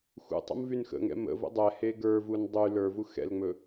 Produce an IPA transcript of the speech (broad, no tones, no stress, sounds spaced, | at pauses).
x ṵ tˤ ṵ m v y n x ə̰ ŋ ɛ̰ m ə̰ v ə̰ dˤ ɛ h e ɡ ə˞ v u n dˤ y l ə˞ v u x ɛ̰ l ŋ͡m ɵ